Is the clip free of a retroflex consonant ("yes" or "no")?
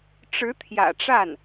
no